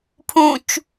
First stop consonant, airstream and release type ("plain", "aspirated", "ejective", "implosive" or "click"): aspirated